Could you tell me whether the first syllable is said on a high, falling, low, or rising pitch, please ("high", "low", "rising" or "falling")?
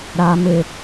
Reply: low